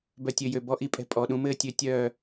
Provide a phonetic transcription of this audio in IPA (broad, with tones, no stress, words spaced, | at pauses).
bœ˨tʲø˨ jø˨bɔ˦ʔi˦pʼɛ̤˧ pʼɔ˨ɗũ˧mɘː˦ tʲø˧tʲœː˦˨